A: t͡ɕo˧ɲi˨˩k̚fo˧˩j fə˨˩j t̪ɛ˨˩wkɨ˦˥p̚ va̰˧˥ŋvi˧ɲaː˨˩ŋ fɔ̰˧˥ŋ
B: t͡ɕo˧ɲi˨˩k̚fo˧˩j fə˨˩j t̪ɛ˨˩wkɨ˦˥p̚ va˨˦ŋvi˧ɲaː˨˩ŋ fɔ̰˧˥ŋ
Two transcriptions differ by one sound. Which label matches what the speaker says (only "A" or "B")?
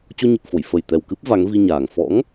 B